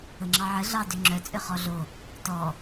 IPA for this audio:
əŋ͡ǁɑʕə ɮɑdʏŋ͡ǁœ t͡sʼʏχɔɮo | tɔ

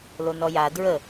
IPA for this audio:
lonɔja dɹə

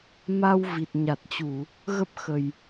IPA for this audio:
ma˧wvi˨˩t̚ ɲa˨˩t̚t͡ɕu˧˩˨ | ɣə˦˥p̚ xə˨˩j

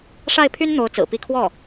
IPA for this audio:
ʂa˥˩ɪ̯pʰy˥n n̪o˧˥ʊ̯t͡sɹ̩˨˩ pi˥˧ kʰwɔ˥˩

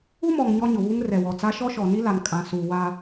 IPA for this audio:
u˦mɔ˨ŋ ɲɔ˦ɲʊ˨βu˦ŋ rɛ˨wɔ˨t͡sa˦ ʃɔ˦ʃɔ˨ni˦la˨n kʼã˨suː˨ wa˦

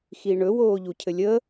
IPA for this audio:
xiɳɵ woːʎucʰɘlʲə

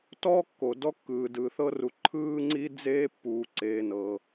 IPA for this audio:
tɔː˥kːo˩ dɔ˥kːɯː˩dɯː˩ θɤ˥ru˨ ǃʰɯː˥ŋ͡ǀi˥d͡zeː˥ pːuː˨ǀeː˨nɤ˩

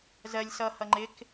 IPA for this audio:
zɜlʲ sʌhʌ ŋ͡ǃɪk

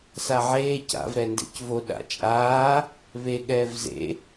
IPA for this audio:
saʕeː ca̰v ɾɛndḛcvo ɗa̰t͡ʃʼaː | βe ɠɛːvzḛ

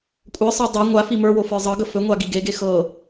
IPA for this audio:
kʷʼə˞sˤə˞ dˤɑ ŋʷa fimə˞wo fə˞zˤɤɡə fɵŋʷa ɡiɡeɡe xɤ

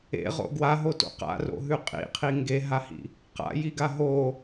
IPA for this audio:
ḛʁo̰ ɡwaɦoto̰ qa̰ro̰ɦʉ qʼḭqʰi ŋɡeɦahḭ | qa̰jiɡa ɦo

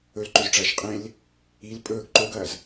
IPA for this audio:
ɵlǃɵzʈ͡ʂɐːʃ qʼẽl | il pʼɵːɡ ǃoɡɐːz

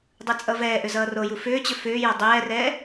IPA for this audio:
dˤɯt͡sʼʌvɛːʔʏ zʌːroju fʏːt͡ɕʏ fʏːja dˤɛːrɛː

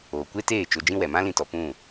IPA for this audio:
oː˨kʷe˦teː˦˨ t͡ʃo˧d͡ʒĩ˦ wɛ˨mã˦lĩ˧tɔ˨ pũ˦˨

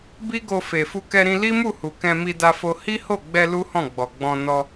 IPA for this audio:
bi˦ɡo˧ fe˨fu˧ kɛ˧ɾĩ˧ li˦mu˦˨ hu˨kɛ̃˧ mi˧da˧fo˧ hi˦ho˦˨ɡ͡bɛ˧ lu˦hɔ̃˦˨ɡ͡bɔ˨ɡ͡bɔ̃˧ nɔ˧

